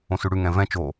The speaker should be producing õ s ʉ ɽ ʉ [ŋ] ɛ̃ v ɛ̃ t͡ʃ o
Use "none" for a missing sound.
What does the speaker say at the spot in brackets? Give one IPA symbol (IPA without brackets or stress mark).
ŋ